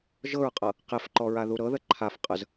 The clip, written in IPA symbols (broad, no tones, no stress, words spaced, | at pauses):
ʒɤɹqʼɤ | qefǃɔɹaðu ɾɤðə ǃʰaf qʼəz